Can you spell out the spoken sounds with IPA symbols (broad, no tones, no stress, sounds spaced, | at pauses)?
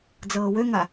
d͡z ɤː w ø ŋ a